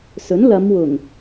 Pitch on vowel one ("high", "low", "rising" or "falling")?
rising